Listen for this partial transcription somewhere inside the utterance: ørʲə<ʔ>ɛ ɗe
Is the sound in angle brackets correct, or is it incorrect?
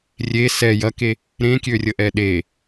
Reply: correct